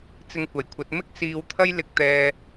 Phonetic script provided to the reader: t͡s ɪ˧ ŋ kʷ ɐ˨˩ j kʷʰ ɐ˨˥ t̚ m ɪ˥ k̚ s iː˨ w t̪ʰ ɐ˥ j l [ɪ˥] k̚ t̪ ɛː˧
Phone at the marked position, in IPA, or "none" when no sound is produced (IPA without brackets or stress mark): ɪ˧